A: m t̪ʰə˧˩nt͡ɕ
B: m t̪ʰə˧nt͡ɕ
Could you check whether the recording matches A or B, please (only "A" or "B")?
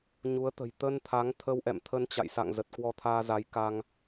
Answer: B